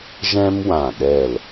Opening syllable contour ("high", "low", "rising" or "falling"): high